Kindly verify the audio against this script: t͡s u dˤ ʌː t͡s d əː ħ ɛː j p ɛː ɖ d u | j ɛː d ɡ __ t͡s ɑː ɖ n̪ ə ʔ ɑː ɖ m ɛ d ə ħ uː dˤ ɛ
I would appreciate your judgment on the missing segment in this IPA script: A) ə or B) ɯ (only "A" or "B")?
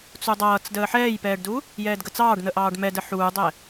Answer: A